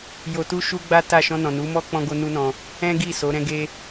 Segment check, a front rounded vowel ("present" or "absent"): absent